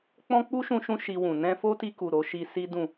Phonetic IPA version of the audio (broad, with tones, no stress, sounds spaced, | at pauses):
k͡p ɔ̃˦ k͡p u˦ ʃ ũ˧ ʃ ũ˧ ʃ i˧ w ũ˨ n ɛ̃˧ f o˦ t i˧ k u˨ ɾ o˨˦ ʃ i˦ s i˦ d ũ˦˨